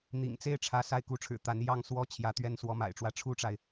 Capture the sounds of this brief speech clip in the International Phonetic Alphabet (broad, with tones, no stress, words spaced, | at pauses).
n̪ḭ˨˩ŋ t͡se˥˩ɪ̯ʈ͡ʂʰä˧˥ sa˥˩ɪ̯ku˧˥ʈ͡ʂʰɻ̩˨˩ t̪a˧˥njɑ˥ŋ swɔ˥t͡ɕʰjä˧˥t̪ɥɛ˥˩n swɔ˧˥ma̰˨˩ɪ̯ʈ͡ʂwä˥˩ ʈ͡ʂʰu˥ʈ͡ʂa˨ɪ̯